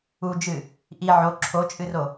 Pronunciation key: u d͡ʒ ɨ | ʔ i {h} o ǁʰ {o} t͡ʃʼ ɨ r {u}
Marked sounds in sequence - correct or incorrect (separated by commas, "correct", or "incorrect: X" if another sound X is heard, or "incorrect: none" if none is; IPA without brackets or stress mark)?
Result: incorrect: ʕ, correct, incorrect: o